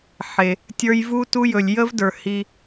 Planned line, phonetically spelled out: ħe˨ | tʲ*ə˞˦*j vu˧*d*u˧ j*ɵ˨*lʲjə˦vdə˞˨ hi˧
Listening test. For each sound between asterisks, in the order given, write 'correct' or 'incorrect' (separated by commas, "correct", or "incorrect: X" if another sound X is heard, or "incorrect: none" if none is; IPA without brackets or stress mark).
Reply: incorrect: ə˞˧, incorrect: t, correct